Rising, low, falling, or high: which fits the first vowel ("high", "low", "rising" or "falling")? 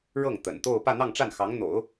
falling